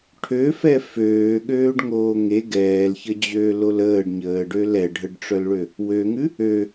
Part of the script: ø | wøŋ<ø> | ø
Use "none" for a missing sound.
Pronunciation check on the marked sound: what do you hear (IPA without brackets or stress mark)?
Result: ʉ